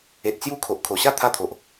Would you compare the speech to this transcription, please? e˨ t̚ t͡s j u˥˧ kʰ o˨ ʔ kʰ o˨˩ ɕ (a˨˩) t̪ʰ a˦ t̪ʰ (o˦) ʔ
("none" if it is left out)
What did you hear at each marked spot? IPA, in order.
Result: a˥˧, o˨

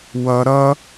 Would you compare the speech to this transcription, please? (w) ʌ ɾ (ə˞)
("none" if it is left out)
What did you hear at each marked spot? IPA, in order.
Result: w, ʌ

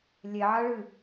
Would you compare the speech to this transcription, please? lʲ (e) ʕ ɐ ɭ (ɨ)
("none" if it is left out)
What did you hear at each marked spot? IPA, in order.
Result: e, ɨ

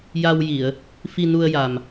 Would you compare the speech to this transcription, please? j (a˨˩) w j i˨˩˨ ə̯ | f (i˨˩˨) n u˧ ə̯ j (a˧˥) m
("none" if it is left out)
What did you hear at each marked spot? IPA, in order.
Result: a˧, i˧, a˨˩

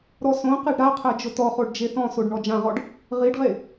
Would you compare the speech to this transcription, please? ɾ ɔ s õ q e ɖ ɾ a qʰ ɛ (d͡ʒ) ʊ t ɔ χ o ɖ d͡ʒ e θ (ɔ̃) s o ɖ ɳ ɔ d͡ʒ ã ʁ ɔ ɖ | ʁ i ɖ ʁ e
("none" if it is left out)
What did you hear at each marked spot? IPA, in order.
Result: d͡ʒ, ɔ̃

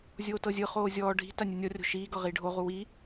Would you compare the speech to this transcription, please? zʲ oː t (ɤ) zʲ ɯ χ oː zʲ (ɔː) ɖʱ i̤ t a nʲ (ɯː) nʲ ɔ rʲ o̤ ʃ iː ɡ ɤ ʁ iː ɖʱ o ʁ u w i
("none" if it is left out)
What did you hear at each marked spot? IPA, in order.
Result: ɤ, ɔː, ɯ

